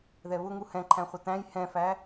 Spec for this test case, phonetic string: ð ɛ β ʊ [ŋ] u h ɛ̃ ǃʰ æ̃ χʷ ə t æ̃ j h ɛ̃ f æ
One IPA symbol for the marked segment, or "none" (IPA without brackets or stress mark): ŋ